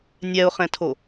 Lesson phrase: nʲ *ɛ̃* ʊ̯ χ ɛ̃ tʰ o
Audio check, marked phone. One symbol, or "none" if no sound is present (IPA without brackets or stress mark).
ɛ